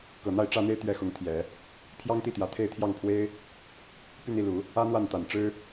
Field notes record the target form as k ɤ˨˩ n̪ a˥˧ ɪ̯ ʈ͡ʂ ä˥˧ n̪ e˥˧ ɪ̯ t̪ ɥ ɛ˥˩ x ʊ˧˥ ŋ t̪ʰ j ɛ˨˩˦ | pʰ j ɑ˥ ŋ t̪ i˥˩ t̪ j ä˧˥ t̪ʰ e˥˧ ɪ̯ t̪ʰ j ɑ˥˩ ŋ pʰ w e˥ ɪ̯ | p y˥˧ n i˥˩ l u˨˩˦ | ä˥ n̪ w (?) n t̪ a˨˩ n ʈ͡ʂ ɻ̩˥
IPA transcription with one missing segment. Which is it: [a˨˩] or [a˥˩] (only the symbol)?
a˥˩